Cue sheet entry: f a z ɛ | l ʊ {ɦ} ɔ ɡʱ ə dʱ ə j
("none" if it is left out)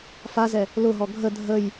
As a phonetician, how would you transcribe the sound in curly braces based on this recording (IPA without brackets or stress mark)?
ɦ